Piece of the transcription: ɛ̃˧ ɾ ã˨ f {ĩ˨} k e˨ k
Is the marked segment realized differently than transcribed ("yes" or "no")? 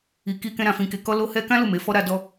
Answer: no